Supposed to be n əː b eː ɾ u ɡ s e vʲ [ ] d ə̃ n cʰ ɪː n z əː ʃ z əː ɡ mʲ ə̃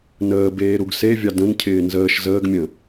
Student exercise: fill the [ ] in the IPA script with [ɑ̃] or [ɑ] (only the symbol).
ɑ